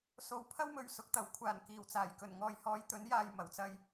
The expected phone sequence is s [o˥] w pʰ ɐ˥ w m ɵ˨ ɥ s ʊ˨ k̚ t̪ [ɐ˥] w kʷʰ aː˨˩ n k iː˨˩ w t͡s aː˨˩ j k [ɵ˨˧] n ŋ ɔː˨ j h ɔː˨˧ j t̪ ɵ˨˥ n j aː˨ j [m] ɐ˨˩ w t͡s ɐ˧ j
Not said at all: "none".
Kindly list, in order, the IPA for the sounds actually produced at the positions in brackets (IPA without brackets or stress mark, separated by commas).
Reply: o˨˧, ɐ˨˩, ɵ˨˩, m